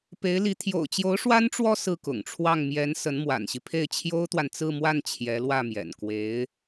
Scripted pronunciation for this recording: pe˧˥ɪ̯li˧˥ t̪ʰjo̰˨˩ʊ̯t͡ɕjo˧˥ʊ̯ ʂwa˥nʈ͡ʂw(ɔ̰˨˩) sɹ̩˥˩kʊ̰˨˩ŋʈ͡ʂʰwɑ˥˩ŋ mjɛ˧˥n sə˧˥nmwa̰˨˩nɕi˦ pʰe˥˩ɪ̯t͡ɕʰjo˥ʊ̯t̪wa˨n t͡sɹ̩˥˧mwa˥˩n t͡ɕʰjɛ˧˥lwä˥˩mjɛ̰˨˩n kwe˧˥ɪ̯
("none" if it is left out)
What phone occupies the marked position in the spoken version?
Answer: ɔ˥˧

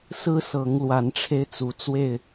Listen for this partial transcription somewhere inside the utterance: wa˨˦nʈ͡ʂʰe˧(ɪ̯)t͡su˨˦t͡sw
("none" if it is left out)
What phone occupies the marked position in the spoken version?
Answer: ɪ̯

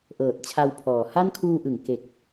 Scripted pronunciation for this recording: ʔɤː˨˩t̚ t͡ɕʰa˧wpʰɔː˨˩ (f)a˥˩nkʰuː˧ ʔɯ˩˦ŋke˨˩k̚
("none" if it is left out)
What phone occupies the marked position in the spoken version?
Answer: h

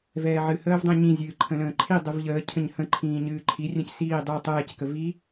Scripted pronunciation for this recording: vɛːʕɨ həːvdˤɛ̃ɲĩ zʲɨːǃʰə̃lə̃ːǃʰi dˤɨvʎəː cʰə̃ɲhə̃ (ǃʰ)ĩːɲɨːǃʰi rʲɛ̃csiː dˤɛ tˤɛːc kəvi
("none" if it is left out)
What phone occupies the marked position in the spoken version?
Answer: ǃʰ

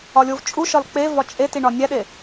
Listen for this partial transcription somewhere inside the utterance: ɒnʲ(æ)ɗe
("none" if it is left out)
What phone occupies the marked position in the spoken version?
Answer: æ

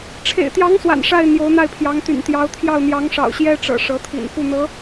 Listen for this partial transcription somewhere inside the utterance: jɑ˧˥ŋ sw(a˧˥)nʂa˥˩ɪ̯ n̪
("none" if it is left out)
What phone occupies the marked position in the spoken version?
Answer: a̰˨˩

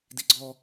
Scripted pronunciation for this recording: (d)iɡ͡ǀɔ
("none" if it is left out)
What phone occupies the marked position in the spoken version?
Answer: d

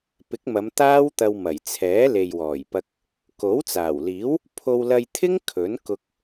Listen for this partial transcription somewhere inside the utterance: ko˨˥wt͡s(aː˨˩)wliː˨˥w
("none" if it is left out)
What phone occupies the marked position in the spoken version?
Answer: aː˨˩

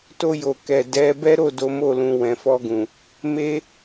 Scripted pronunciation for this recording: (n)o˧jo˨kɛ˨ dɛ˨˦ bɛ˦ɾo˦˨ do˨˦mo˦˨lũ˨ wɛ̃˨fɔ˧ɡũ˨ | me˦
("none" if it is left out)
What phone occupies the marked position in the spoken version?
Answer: t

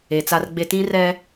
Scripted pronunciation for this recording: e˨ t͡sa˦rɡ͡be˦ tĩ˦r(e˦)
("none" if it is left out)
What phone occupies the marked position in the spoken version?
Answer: ɛ˦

